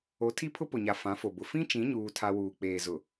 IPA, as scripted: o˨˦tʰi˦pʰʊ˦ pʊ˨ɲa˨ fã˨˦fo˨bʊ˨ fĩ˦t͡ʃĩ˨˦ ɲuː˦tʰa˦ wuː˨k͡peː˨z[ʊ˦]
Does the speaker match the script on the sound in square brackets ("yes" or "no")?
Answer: no